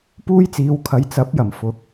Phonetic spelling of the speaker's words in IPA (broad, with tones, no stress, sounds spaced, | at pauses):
p uː˥ j t͡s iː˨˧ w kʰ ɐ˨˧ j t͡s ɐ˨˥ p̚ j ɐ˨˩ m f ʊ˨˥ k̚